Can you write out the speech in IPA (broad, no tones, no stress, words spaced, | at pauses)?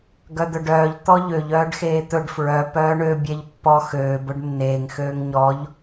ɡœd̪œɖœːʎ t̪ɔʎøʎ œːɖxeːt̪ɵɖ fɹœ pœːɳø bʲɛʎpːɔ xøː bɵɖnːeːŋ xøːŋɲɔʎ